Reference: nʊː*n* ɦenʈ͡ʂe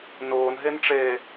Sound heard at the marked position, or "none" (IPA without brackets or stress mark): n